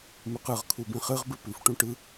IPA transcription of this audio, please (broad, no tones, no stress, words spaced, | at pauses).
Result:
mʉqɯʁ kʰubĩχɨʁ bɨpʉfʈũ ʈɯ